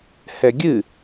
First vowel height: mid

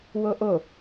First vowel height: mid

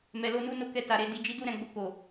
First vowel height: mid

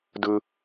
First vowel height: high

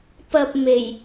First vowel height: low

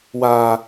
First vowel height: low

